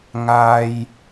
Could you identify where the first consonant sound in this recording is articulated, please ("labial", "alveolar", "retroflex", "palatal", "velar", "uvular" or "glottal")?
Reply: velar